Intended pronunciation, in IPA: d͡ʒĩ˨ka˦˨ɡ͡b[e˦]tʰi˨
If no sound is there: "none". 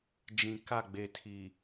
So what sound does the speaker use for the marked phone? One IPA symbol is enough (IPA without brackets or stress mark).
e˨